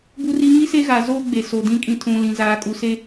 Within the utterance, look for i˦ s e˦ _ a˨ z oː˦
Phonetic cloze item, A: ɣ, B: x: A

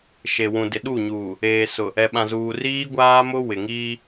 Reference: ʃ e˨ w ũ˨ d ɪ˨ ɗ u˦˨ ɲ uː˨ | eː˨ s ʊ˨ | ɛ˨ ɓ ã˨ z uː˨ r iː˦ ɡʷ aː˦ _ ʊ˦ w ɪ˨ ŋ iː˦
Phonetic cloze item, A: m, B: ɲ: A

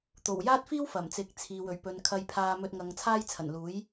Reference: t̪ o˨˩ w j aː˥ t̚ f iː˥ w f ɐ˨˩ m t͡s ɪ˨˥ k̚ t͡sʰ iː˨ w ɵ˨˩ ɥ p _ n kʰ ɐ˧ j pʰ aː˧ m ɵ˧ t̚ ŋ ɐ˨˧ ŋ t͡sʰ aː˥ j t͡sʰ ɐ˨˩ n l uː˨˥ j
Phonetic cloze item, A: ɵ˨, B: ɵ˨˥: A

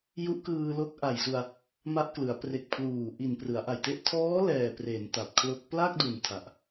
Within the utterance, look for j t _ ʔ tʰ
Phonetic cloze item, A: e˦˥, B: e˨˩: A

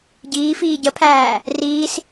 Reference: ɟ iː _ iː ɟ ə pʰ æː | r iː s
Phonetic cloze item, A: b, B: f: B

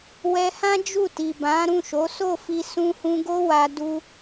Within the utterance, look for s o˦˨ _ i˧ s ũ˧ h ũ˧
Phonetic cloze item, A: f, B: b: A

